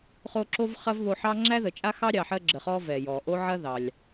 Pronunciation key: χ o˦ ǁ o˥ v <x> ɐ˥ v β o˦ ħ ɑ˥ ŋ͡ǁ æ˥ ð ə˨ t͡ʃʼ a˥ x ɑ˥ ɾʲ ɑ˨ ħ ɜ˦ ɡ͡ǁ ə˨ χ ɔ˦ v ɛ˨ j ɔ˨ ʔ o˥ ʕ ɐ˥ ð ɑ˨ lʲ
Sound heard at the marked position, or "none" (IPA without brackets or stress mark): χ